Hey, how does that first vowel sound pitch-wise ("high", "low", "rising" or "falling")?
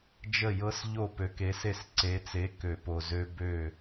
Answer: falling